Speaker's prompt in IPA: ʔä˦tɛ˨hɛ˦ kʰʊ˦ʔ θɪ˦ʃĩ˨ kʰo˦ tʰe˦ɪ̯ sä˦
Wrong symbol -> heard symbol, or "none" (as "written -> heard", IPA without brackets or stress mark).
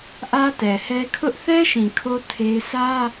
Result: ɪ˦ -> ɛ˦